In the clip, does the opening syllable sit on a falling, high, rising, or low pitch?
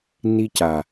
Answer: high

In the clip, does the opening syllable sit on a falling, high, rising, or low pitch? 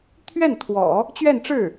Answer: falling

